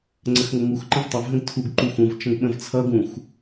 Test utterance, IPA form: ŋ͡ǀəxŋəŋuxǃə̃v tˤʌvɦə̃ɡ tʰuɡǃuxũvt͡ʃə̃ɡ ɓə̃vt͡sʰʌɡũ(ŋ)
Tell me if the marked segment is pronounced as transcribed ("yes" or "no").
no